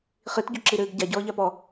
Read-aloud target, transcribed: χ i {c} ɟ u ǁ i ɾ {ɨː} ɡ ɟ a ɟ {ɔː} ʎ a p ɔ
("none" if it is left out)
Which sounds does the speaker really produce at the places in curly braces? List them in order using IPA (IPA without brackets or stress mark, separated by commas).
t, ɨː, ɔː